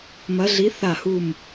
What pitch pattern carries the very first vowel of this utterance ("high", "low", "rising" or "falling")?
rising